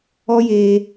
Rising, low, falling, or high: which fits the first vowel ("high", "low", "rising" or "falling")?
high